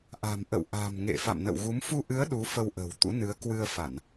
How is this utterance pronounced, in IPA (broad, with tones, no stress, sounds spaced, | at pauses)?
ʔ a̤˨˩ m ʔ ə̰˧˨ w ʔ a̤˨˩ m ŋ ḛ˧˨ f a̰˧˨ m n ə̰˧˨ w ɣ u˨˦ m f u˧ ʔ ɨ˨˦ ə̯ ɗ u˨˦ f ə˧ w ʔ ə̤˨˩ w t̪ ṵ˧˥ n ɨ˨˦ ə̯ k w ɨ˧ ə̯ f a˧˩˨ n